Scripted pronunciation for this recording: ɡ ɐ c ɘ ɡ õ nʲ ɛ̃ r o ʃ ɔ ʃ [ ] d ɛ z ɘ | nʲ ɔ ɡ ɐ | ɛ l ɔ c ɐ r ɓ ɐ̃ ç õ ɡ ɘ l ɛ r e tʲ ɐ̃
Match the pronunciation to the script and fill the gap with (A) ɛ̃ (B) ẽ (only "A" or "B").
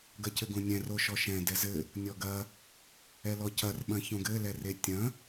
A